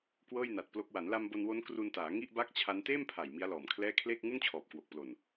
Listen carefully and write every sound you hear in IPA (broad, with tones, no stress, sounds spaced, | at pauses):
k w ɤː˥˩ j n a˨˩ t̚ p l o˦˥ k̚ w a˩˦ n l a˧ m b o˧ n w o˦˥ n k r u˧ n t aː˩˦ ŋ i˥˩ ʔ b a˥˩ k̚ t͡ɕʰ a˦˥ n t eː˥˩ m pʰ a˨˩ j m i˦˥ a̯ l ɔː˨˩ m kʰ l ɛː˥˩ kʰ l eː˥˩ k̚ ŋ u˥˩ n t͡ɕʰ ɔː˨˩ p̚ k w o˨˩ k̚ p l o˨˩ n